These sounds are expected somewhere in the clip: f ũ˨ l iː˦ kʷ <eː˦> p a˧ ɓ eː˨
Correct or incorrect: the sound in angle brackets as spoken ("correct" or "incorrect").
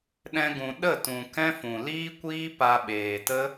incorrect